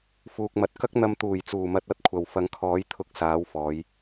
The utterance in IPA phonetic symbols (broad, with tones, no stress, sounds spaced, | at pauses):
f uː˨ k̚ m ɐ˨ t̚ k ɐ˥ k̚ n̪ ɐ˧ m t̪ uː˨˩ j t͡s uː˨˩ m ɐ˧ t̚ ɐ˨˥ t̚ kʷʰ ɐ˨ w f ɐ˨˥ ŋ kʰ ɔː˨˥ j t̪ʰ ʊ˨ k̚ s aː˨˥ w f ɔː˨˧ j